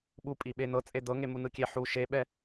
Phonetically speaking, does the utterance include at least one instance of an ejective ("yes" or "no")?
yes